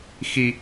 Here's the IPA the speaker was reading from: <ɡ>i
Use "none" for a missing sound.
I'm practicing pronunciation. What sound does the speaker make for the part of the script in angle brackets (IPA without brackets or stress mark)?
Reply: x